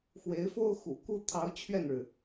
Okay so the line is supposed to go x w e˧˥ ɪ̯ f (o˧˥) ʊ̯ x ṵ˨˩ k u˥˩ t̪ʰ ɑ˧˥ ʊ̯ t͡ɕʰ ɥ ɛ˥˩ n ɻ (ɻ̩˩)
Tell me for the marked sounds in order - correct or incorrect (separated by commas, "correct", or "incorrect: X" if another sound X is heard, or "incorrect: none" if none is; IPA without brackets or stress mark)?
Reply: incorrect: o˥, correct